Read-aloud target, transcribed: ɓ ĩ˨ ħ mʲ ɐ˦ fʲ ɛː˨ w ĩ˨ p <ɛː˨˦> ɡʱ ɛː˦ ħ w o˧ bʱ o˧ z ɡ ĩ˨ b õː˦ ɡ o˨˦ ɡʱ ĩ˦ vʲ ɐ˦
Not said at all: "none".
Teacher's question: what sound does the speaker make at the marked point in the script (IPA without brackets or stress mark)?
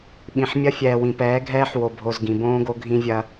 ɛː˨˦